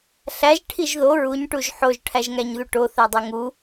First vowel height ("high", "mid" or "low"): low